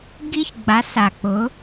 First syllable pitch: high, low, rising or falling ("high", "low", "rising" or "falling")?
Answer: high